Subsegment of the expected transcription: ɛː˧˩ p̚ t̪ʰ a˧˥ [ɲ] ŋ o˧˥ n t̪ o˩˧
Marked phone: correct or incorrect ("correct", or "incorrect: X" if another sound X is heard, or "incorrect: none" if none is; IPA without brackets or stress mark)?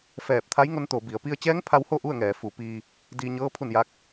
incorrect: j